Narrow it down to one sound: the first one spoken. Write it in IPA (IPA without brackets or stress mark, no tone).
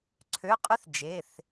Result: ǀʰ